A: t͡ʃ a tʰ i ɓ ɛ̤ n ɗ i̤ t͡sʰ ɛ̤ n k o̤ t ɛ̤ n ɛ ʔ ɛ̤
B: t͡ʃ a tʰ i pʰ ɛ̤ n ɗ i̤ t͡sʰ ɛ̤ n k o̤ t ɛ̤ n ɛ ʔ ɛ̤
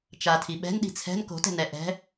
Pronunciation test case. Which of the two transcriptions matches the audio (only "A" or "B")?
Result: A